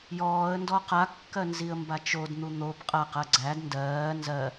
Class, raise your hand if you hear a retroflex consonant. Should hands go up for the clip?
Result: no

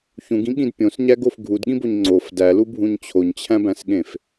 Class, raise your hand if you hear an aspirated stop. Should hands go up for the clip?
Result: yes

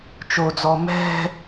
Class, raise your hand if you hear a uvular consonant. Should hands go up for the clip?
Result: no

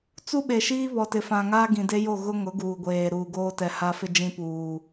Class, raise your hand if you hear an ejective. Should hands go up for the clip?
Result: no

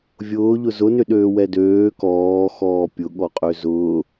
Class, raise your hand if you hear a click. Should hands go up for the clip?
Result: no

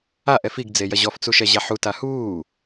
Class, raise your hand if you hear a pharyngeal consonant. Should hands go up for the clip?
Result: yes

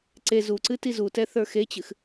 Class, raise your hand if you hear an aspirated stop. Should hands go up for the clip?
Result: no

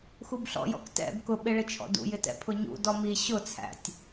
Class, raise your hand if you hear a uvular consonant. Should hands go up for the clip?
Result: no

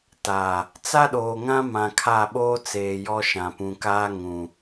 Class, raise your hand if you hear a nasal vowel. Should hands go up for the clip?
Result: yes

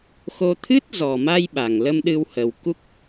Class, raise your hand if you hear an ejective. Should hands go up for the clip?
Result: no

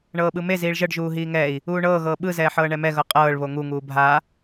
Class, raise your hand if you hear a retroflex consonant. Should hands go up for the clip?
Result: yes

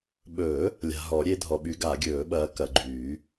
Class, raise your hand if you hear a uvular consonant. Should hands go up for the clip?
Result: no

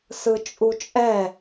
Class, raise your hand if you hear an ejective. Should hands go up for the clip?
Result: yes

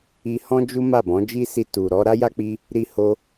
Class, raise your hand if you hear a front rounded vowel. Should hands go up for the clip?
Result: no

